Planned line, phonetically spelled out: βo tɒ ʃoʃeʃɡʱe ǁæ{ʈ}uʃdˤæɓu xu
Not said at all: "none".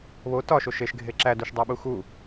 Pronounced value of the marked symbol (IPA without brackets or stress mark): d